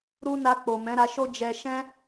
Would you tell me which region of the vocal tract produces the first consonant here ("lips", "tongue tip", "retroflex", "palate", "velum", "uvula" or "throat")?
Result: tongue tip